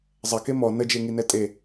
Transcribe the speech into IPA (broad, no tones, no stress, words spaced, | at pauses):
zˤɐke mɔ nəd͡ʒeŋinɛ tʼe